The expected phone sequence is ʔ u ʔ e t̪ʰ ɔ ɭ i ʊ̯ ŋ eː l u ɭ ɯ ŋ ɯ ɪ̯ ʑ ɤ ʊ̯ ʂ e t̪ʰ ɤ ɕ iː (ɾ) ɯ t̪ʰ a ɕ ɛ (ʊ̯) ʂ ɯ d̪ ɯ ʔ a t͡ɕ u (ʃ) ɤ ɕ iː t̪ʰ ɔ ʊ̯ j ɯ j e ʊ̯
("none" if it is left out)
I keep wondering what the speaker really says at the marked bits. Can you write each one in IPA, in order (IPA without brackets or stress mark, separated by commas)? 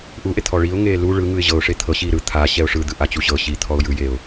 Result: ɾ, ʊ̯, ɕ